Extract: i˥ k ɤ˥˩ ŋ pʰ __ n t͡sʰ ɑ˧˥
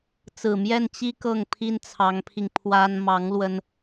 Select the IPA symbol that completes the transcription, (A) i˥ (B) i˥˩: A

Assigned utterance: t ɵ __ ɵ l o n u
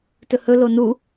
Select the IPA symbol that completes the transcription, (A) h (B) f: A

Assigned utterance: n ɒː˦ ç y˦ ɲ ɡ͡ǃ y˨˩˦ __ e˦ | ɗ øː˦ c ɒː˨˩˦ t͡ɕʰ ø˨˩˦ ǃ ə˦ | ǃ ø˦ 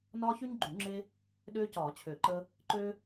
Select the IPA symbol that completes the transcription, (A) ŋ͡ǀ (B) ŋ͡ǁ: B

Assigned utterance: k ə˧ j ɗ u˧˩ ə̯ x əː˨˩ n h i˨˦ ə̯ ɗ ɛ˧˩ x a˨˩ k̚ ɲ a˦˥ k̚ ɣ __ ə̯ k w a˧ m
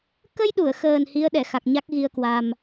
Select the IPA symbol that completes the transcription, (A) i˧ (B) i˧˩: A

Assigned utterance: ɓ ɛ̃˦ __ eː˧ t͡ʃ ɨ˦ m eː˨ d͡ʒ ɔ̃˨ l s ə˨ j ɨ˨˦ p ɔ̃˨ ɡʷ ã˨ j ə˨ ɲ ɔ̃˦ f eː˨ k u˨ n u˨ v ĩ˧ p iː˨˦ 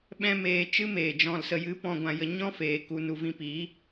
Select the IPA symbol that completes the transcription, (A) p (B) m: B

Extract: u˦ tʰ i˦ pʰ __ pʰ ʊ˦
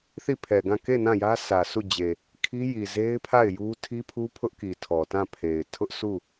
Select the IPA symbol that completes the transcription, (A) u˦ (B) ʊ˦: A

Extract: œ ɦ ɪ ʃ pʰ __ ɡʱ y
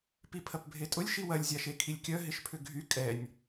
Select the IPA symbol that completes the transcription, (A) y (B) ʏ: B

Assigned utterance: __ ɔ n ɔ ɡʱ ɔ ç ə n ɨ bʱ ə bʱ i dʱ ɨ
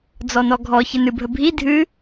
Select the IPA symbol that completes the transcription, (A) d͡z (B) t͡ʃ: A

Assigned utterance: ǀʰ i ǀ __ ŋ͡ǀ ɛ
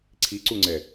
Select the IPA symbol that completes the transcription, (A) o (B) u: B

